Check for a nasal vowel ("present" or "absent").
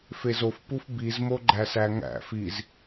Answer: absent